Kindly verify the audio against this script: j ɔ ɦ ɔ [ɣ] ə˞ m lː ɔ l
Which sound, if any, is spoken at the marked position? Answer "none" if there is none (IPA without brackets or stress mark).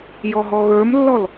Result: ɣ